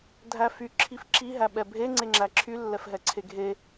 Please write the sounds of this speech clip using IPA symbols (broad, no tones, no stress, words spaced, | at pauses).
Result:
dʱæfy ǁʰifǁi ɦæɓɛbʱe ŋ͡ǀeŋ͡ǁæǁʰy lːɛfɦɛǀʰeɡʱe